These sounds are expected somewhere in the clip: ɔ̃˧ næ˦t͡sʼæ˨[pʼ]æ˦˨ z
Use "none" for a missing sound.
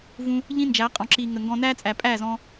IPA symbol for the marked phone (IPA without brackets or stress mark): pʼ